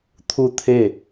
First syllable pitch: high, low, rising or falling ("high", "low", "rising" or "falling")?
falling